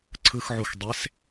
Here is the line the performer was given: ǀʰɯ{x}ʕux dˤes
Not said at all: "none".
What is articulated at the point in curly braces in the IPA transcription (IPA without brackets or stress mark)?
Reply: x